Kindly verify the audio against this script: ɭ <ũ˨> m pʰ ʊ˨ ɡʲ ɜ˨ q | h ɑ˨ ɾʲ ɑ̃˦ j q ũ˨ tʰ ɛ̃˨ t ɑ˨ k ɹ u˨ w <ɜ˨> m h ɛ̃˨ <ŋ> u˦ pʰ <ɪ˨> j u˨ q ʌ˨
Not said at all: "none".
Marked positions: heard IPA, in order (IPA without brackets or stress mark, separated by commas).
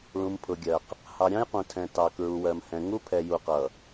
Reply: ũ˨, ɜ˨, ŋ, ɛ˨